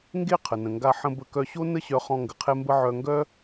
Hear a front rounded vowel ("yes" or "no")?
yes